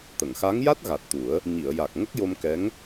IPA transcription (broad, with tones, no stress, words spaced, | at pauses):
t̪ə˨˩˨ŋxa˧˥ŋja˦˥t̚ ɣa˨˩t̚t̪u˨˩˦ə̯ | ɲi˨˩˨ə̯ja˨˩k̚ ŋə˦˥k̚jo˧mkɛ˧˥ŋ